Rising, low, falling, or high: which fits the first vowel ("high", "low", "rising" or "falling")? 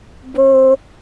low